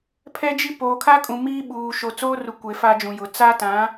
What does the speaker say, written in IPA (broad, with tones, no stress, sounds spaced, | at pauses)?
pʰ ɛ˦ d͡ʒ i˦ p oː˨ kʰ a˦ kʼ ũ˨ m iː˦ ɓ uː˨ ʃ o˨ t͡s oː˦ r u˨ kʷ e˨ f a˦ d͡ʒ ũ˨ j ʊ˨ t͡s a˦ t ã˨˦